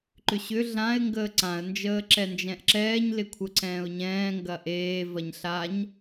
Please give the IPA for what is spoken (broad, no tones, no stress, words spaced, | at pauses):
ǃʏɕʏ ɮãɪ̯ ŋɡəːǀãə̯ nd͡ʒəːǁɛnd͡ʒɛ̃ʔǁɛːɲ lɪkʷʰəǀɛ̃ːʊ̯ɲɛ̃ː ŋɡɐʔeː vɐɲɬaɲ